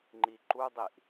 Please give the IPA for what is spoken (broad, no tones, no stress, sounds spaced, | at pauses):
ŋ͡ǃ i ǃ u dˤ i ʔ